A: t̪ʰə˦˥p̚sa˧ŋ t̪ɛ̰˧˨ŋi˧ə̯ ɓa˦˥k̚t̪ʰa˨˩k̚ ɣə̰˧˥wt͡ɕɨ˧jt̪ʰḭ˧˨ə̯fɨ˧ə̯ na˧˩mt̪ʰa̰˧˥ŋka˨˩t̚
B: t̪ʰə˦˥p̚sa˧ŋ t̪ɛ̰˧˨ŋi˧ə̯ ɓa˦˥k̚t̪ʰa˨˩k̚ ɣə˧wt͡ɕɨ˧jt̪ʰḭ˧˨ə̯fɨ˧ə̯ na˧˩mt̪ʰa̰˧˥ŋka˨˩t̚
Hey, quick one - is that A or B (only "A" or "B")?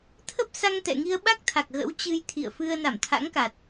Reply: A